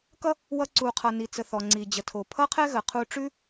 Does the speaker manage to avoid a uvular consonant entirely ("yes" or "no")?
no